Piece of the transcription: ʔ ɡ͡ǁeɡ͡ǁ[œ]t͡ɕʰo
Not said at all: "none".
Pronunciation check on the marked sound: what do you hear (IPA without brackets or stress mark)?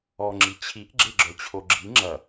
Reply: œ